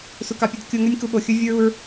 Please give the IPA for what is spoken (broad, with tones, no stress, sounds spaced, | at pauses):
s u˨ k ɑ˨ pʲ ɵ˧ d kʲ o˧ ŋ ø˦ nʲ k u˧ ɓ o˨ xʲ ɵ˦ vʲ u˦ ɹ u˦ ɹ